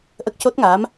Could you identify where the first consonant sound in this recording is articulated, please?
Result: glottal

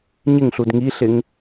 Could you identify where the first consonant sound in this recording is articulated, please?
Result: palatal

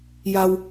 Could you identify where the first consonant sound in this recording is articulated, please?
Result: palatal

